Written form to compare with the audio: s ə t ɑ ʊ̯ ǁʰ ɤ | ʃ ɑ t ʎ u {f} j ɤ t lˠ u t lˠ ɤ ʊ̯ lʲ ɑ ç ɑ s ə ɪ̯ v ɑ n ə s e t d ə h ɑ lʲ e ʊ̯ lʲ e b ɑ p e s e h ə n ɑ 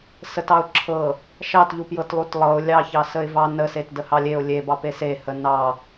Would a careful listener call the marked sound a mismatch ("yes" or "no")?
yes